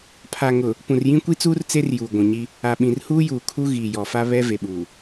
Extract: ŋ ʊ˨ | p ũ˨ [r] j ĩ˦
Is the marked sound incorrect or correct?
correct